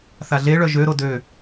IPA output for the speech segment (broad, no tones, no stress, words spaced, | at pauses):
θaɮeɭœ ʒøɾo dø